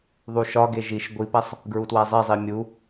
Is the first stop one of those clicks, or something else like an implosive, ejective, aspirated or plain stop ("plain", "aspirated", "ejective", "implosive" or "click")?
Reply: plain